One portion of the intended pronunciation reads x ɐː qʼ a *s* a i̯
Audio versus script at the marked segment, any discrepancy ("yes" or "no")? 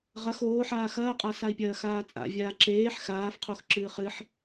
no